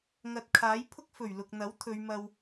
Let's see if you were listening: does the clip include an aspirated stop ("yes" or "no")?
yes